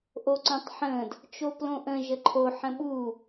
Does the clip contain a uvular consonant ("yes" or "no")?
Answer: no